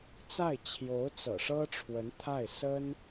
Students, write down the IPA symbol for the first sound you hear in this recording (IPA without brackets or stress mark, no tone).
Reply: t͡s